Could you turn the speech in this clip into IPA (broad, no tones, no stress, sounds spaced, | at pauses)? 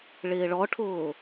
ɭ ɪː ɭ ɔ ʈʰ ʊː